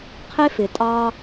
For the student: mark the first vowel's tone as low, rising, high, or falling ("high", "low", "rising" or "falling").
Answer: high